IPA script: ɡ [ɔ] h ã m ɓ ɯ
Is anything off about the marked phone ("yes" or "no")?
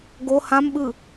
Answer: yes